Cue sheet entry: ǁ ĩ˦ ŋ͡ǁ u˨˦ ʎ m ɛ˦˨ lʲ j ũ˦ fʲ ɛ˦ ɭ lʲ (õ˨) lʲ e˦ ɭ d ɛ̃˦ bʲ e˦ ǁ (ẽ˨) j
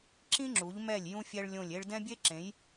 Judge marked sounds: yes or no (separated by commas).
no, no